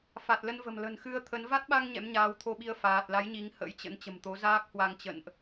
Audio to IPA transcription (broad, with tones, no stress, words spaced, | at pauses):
fa˨˩t̚lə˧nvə̤˨˩m lə̤˨˩nxɨ˧ə̯ t̪ʰə˨˦n va˦˥t̚ɓa˧ŋ ɲɛ̰˧˥mɲaː˨˦wt̪ʰo˧ɓi˧ə̯ faː˨˩t̚la˨˦j ɲi˨˦ŋhə̰˧˥jt͡ɕə̰˧˥n t͡ɕə̤˨˩mt̪o˨˦ zaː˦˥k̚hwa˧ŋt͡ɕə̰˧˨nʔ